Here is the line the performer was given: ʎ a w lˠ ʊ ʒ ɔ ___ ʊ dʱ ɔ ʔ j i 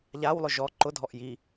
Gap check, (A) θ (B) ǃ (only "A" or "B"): B